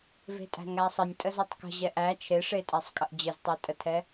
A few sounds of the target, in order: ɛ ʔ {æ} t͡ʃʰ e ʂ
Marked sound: correct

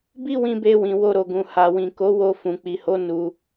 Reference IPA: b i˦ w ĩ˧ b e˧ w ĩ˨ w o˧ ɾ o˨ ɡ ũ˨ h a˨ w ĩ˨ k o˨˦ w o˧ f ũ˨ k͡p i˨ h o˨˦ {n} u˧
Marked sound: correct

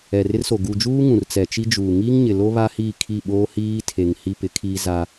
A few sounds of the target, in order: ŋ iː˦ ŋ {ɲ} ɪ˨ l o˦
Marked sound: correct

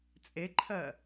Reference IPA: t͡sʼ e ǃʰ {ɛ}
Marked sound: incorrect: ɜ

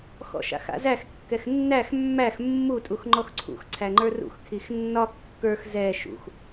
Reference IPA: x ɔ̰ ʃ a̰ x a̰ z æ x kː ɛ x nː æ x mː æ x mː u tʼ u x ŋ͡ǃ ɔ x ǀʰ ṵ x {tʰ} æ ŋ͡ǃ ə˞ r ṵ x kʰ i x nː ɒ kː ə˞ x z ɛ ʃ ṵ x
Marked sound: incorrect: ǀʰ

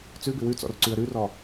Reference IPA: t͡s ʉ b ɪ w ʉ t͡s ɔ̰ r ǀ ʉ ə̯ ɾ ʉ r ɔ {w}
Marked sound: incorrect: none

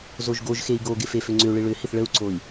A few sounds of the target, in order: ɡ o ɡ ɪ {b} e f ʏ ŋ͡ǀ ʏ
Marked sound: incorrect: f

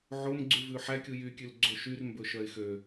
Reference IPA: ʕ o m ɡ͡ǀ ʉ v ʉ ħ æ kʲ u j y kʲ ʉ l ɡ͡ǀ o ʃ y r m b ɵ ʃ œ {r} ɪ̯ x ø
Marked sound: incorrect: none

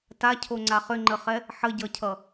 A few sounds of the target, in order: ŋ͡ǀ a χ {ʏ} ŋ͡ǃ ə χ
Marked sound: correct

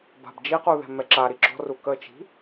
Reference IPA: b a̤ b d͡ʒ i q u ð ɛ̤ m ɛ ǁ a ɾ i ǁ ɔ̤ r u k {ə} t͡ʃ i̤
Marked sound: correct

